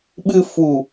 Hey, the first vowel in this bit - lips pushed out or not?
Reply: no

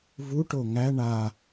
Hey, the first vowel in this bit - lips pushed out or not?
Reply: yes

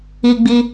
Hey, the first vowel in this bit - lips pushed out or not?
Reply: no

